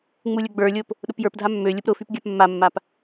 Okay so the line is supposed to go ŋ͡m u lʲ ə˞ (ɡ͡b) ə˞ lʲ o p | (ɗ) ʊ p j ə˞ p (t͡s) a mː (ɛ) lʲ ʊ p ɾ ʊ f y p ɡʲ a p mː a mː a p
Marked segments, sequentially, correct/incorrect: correct, correct, incorrect, incorrect

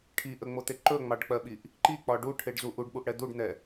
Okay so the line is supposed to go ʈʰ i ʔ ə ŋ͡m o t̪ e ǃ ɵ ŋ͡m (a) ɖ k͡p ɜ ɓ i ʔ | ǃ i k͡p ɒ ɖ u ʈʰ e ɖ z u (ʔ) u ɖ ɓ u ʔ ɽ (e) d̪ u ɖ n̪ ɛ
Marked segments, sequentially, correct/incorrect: incorrect, correct, incorrect

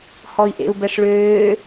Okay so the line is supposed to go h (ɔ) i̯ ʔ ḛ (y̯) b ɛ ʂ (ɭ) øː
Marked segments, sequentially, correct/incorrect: correct, incorrect, correct

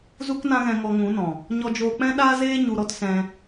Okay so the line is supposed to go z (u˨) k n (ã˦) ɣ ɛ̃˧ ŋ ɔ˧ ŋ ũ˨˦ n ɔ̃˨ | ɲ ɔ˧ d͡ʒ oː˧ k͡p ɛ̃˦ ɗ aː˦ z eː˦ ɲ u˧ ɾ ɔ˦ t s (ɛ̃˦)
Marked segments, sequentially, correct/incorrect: incorrect, correct, incorrect

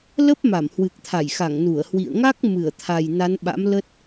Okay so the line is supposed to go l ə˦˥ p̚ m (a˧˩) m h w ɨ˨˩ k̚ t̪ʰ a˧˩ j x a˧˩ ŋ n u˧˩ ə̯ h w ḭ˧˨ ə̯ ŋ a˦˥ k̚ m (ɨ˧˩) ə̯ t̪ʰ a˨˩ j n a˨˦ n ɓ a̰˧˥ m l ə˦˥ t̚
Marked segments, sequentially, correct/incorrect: correct, correct

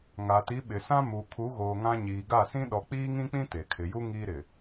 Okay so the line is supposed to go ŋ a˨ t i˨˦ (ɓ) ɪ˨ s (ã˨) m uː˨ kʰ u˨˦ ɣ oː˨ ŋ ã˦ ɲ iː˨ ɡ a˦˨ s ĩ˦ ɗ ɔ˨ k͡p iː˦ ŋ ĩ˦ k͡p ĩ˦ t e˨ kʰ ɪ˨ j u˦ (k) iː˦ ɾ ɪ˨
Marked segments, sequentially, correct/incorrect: correct, incorrect, incorrect

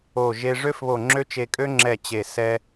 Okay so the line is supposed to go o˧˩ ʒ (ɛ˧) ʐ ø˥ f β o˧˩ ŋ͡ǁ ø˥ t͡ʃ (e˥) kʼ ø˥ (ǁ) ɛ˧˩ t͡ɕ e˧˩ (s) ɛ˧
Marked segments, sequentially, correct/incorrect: incorrect, incorrect, incorrect, correct

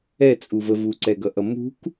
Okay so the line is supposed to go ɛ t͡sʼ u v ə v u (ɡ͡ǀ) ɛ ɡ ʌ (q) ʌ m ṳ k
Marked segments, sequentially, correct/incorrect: incorrect, incorrect

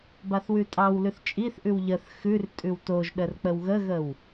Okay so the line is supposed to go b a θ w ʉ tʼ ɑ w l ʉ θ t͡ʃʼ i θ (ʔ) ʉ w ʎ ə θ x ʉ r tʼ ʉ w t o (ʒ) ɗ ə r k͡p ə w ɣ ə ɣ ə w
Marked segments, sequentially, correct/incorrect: correct, correct

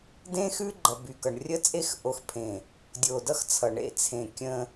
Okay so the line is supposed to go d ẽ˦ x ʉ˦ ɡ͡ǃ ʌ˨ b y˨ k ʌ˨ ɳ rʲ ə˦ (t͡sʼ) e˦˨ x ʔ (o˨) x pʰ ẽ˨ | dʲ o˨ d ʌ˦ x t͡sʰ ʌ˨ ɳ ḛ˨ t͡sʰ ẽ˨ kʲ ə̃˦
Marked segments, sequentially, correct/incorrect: correct, correct

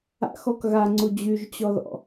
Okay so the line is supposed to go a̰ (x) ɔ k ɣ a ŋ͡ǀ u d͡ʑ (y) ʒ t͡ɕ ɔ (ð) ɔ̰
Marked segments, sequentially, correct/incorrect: correct, correct, correct

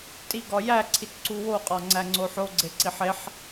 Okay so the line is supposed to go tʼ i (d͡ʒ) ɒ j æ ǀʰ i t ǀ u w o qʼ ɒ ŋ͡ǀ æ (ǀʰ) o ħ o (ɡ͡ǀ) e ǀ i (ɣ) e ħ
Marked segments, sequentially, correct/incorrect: incorrect, incorrect, correct, incorrect

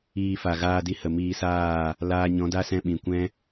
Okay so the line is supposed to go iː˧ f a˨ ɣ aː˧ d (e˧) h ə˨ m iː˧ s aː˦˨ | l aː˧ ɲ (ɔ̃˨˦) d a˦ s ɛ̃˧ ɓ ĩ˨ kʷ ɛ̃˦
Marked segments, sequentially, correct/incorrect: incorrect, correct

